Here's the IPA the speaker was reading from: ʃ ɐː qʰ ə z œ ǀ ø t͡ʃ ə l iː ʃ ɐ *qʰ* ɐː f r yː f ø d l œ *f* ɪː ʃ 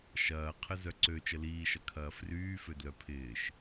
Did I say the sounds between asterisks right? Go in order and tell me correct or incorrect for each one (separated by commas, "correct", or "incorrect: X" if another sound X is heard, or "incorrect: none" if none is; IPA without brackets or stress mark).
incorrect: kʰ, incorrect: pʰ